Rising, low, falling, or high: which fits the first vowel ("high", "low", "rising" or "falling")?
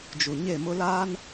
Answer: low